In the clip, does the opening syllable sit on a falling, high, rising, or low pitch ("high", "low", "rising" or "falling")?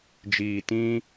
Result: low